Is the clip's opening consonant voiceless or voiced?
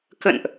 voiceless